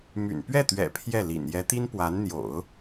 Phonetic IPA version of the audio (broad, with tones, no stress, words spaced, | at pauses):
my̰˨˩n pɥɛ˥˩t̪ɥɛ̰˨˩ pʰjɛ˥˩lḭ˨˩n jɛ˧˥t̪i˥npwa˧˥n n̪jo̰˨˩˦ʊ̯